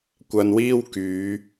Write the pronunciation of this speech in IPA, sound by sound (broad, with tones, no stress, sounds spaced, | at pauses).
kʷ ɐ˧ n w iː˥ w k yː˨˧